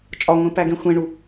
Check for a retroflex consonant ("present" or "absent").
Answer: present